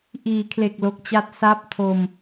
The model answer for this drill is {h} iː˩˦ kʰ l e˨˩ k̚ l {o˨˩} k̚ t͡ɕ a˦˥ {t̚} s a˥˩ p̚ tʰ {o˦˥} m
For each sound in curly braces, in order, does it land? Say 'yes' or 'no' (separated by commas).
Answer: no, yes, yes, no